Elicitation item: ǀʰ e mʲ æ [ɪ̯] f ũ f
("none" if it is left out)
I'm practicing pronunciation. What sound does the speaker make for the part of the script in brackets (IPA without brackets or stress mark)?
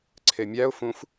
ʊ̯